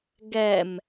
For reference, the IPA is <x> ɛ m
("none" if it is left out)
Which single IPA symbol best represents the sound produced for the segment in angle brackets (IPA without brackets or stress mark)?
ɡ